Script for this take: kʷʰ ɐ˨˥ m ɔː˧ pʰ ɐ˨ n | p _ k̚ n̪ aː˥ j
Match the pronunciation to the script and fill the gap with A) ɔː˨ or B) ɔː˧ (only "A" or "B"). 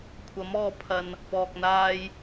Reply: B